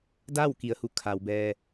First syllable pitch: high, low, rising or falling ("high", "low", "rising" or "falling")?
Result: falling